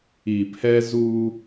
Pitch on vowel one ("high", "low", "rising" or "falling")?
low